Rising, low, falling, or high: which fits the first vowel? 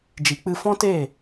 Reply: low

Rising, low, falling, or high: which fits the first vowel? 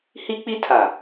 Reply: high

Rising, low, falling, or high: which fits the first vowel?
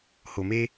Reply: low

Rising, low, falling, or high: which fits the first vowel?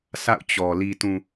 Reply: falling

